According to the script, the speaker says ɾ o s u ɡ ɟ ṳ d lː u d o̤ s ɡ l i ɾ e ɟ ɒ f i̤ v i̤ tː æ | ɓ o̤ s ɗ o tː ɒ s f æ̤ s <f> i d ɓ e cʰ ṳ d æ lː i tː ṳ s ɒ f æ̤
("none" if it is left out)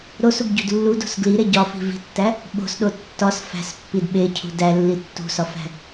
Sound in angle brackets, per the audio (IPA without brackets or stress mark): pː